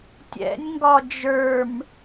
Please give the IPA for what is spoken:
tʲɛ̰nʲŋɡɒ d͡ʒə˞m

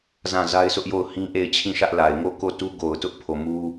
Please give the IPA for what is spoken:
zã˦˨za˦ɪ̯sʰʊ˦ʔjo˦˨ʊ̯ hĩ˦ʔe˦˨ɪ̯ t͡ɕʰĩ˦˨ʃä˦ʔla˨ɪ̯ ŋo˦˨ko˦˨ tu˦ɡo˨ʊ̯tʊ˦ʔ pʰo˨ mu˦

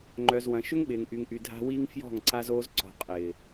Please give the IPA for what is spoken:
ŋ͡ǃœ˨zwɐ̃˨ ʃʏ˦ŋɓɪː˨ŋʔy˨ŋʔy˨ dʱa̤˦wiː˦ŋ fjɔ̤˦˨ŋǀa˦zoː˦z ǀɔ̤˨qʼɪː˨

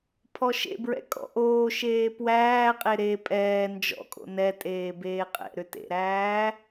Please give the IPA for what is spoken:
pʰɔʃḛbɹɛ̰ kʼɔ̰ʔoːʃeː pwæːqʼe ɾe pʼɛː nd͡ʒɔ̰kʼo̰ nɛtʼeː beːqʼɛ̰ɾʏ tḛɾæː

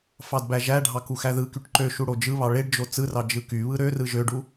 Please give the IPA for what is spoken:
fɑdbæʒæɖʱɑ kuxæðɯkyʈ ǃø ʃuɽod͡ʒɯβɑ ɭeɖd͡ʒo t͡sɯrɑ d͡ʒɯkyβɯ ɾørɯ ʒøɖu

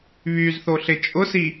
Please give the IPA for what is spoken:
βyzθoɬɪ t͡ʃʼʊsi

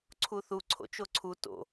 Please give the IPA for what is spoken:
ǀʰuθu ǀʰo̰t͡ʃoǀʰu to̰

